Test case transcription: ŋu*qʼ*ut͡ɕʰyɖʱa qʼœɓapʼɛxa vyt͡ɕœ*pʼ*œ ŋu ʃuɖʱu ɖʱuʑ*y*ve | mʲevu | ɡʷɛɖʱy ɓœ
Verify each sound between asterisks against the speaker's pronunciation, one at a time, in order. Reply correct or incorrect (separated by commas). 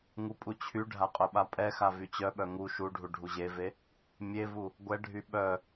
incorrect, incorrect, incorrect